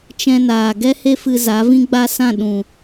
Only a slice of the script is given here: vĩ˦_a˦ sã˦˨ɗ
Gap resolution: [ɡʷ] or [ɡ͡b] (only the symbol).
ɡ͡b